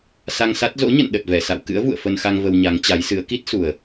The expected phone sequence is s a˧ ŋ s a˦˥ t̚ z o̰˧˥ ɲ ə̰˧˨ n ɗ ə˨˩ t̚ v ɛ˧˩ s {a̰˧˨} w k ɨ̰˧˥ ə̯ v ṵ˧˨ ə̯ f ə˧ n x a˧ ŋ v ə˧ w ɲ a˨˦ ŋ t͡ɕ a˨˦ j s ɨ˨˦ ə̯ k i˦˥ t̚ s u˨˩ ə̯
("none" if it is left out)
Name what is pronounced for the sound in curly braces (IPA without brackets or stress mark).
a̰˧˨